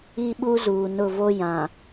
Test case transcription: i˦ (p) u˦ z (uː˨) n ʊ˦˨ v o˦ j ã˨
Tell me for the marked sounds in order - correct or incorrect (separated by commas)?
incorrect, correct